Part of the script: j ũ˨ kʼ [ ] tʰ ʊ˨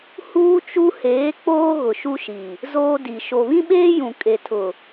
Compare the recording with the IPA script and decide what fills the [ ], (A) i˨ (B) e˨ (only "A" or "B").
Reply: B